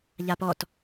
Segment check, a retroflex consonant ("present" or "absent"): absent